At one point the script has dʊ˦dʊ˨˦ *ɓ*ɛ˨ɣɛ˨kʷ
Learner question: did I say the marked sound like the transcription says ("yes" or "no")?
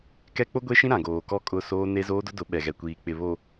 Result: yes